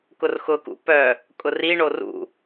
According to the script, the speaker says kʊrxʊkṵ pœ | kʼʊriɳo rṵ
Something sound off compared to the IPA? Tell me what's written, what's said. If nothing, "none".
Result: none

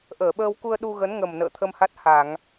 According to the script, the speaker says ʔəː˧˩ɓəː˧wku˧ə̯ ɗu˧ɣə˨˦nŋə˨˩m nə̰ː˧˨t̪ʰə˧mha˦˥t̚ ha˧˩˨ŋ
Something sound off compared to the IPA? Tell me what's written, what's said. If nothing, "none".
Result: none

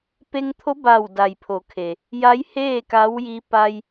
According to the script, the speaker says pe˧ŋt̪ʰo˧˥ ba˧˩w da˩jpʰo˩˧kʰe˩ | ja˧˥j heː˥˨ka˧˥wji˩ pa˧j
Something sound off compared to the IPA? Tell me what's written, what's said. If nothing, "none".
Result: i˩ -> i˧˥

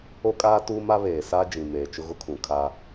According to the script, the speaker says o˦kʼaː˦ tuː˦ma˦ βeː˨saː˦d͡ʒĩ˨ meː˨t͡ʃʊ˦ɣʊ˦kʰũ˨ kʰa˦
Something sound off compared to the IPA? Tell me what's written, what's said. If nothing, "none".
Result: none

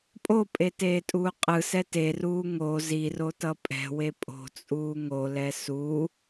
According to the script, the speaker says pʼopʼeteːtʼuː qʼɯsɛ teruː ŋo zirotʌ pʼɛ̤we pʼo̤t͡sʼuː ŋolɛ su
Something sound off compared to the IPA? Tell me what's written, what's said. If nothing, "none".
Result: none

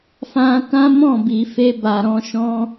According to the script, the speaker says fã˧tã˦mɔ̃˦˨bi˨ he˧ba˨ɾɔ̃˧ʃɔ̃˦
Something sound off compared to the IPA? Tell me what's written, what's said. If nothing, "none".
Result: h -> f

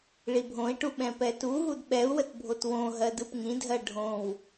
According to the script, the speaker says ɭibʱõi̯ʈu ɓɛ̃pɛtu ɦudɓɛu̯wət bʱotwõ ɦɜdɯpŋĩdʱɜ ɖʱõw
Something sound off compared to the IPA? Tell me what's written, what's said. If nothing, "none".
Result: none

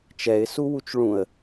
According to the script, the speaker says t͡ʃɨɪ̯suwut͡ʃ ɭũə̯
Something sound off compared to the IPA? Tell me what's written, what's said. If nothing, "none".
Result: ɨ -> ɛ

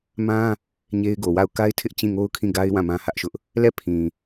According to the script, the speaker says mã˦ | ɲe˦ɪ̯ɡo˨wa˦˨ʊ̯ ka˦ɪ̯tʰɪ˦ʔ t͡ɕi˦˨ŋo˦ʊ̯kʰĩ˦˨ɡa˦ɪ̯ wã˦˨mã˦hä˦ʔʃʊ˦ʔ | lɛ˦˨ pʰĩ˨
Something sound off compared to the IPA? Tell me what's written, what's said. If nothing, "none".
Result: i˦˨ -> ĩ˦˨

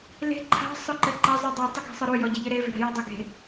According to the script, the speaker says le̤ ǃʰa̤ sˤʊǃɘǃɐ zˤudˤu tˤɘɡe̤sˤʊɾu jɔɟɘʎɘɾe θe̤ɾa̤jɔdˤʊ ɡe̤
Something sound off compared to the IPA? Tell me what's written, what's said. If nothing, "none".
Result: θ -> v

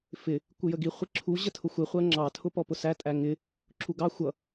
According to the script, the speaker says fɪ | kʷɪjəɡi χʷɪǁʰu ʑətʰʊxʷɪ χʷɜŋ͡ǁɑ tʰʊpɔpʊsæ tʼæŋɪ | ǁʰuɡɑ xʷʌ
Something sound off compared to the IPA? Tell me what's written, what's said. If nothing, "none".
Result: none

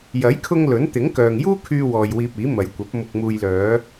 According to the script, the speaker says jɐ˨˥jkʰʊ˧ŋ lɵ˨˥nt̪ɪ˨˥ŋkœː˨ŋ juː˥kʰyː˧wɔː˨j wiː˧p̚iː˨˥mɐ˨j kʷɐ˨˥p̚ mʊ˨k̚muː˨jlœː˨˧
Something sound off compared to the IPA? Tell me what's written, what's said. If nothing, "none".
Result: none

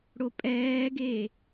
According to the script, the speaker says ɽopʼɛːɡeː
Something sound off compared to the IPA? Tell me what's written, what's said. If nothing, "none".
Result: none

